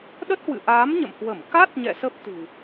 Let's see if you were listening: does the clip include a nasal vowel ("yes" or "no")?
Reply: no